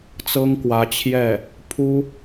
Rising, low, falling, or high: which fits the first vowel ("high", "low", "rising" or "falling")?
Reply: high